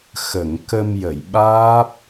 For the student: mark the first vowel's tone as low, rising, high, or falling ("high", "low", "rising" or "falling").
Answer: low